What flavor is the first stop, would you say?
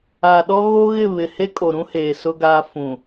implosive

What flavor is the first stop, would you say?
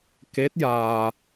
plain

